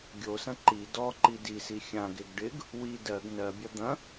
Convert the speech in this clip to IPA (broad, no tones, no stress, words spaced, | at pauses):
ɡʲosɐ̃ ǃi dɔ ǃidisi xʲãɡeɡ ɖɪɡ | wi dɜɡ nɜbʲɐ d̪ɐ̃